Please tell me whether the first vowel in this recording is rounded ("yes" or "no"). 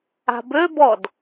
no